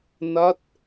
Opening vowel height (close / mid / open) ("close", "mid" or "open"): open